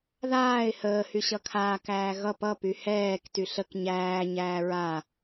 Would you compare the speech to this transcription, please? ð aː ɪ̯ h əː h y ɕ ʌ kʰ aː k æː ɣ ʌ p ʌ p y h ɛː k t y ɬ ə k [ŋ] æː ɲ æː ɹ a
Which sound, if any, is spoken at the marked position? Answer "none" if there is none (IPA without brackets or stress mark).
ɲ